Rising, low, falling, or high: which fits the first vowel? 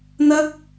high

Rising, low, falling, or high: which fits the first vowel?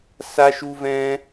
high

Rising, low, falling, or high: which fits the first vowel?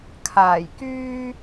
low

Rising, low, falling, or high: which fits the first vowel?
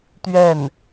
falling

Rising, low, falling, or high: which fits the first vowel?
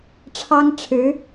high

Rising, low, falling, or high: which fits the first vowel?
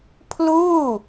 falling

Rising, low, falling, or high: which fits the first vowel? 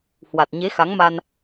low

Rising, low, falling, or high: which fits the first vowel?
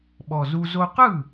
low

